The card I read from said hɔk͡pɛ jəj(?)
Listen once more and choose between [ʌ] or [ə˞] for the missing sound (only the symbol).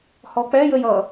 ʌ